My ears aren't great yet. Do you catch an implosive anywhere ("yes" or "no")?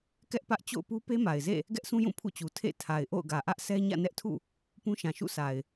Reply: no